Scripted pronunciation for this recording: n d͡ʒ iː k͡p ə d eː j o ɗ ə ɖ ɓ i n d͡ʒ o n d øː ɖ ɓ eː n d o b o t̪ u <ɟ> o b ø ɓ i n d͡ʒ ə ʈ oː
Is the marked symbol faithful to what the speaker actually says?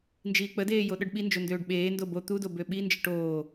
no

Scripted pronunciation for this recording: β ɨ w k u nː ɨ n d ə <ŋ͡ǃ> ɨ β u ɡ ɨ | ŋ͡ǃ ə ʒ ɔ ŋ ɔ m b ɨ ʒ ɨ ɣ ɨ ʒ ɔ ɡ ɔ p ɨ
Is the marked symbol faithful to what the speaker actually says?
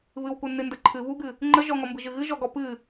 no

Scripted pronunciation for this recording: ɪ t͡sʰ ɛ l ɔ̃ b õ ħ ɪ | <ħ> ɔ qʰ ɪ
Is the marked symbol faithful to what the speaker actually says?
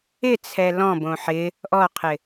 no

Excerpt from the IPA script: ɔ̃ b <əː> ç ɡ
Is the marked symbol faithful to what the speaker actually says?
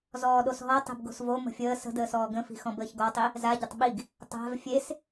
yes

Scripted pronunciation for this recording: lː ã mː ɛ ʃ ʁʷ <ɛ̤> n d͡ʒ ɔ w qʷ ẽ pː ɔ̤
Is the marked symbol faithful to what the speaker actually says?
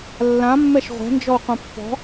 yes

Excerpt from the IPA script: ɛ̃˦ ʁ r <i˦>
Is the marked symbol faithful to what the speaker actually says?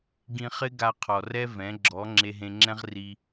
no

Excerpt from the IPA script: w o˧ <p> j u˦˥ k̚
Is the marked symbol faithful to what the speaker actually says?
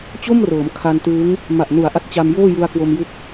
no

